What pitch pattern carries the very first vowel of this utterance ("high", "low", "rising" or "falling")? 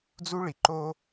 high